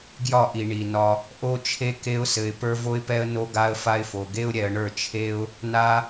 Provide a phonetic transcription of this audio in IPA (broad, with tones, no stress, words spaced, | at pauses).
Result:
ɡjɒ˦˨ʔi˨ɳi˨nɒ˧ | ʔo˦t͡ʃʰe˦ ke˦ʊ̯sɘ˧ɪ̯ pə˞˦vo˦ɪ̯pɛ˦ə̯ no˦ɡa˦ə̯fa˦ɪ̯fo˧ ɡe˦ʊ̯ɾʲɛ˧ə̯ɳə˞˦˨t͡ʃʰe˦ʊ̯ | na˦